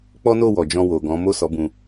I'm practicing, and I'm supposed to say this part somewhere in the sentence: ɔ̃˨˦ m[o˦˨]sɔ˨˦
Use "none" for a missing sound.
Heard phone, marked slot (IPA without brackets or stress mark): o˦˨